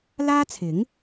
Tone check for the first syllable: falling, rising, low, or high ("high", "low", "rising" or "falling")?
high